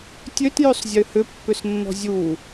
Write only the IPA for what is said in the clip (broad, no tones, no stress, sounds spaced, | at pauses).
tʲ ø t j ø sˤ zʲ ø h ʏ pː ʏ s nː ɔ̤ zʲ u